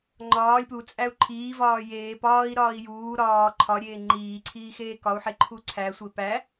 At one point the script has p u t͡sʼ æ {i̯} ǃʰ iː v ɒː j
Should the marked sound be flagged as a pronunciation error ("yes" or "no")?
yes